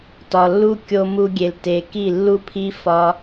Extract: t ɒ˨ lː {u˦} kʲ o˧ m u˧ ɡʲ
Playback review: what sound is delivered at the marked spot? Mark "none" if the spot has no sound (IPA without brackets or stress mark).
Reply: u˦